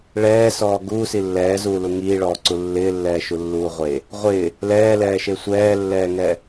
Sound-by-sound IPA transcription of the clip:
ɭ ɛː s ɔː ɡ uː s i lː ɛː z uː l u ŋ iː ɭ ɔː ǀ u lː ɪː lː ɛː ʃ u lː uː ʁʷ e | ʁʷ ɪː | l ɛː l ɛː ʃ e sʷ ɛː lː ɛː ŋ ɛ

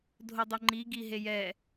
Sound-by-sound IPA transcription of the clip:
dʱ o dˤ ʊ ŋ͡ǃ i ɡ i ɦ e j ɛ

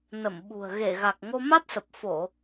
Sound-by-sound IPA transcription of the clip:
n ə˧˩ m ɓ ṳ˨˩ ə̯ ɣ e˧˩ ɣ a˨˩ k̚ ŋ o˧ m a˦˥ t̚ s ə˨˩ p̚ f o˧˩˨

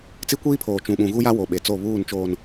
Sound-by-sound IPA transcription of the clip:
t͡s i˦ kʷ iː˦ pʰ oː˨ t͡ʃ ũ˦ ɓ ũ˦ ɣ u˦ j a˦ w o˨ ɓ e˨ t͡s o˦˨ β uː˦˨ n t͡ʃ oː˨ n

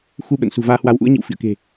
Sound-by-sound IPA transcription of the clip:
x u˧ ɓ ə̰˧˨ n s ṳ˨˩ v aː˧ h w a˨˦ w ʔ ṵ˧˥ ə̯ ɲ ḭ˧˨ w f ḭ˧˨ ə̯ k e̤˨˩

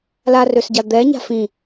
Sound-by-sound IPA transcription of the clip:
l a r ø s ɟ a d̪ ɛ ɲ a̤ f ĩ

